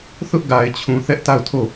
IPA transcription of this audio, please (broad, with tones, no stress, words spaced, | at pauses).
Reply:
θʊ˦ʔɡa˨ɪ̯t͡ɕʰũ˨ θɛ˦ʔta˦˨ʊ̯ tʰo˦˨